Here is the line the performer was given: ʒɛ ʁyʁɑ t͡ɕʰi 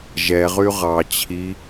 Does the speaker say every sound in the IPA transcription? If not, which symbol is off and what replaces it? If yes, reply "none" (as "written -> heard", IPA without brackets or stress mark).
none